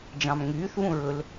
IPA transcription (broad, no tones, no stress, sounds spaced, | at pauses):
d͡ʒ ɑ̃ m ŋ yː θ β ũ ɹ ɵ l